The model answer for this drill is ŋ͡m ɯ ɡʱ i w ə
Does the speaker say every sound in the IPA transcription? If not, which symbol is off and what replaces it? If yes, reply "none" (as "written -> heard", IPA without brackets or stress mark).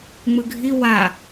ə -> a